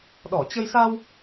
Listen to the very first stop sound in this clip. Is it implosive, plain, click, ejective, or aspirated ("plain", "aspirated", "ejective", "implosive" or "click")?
implosive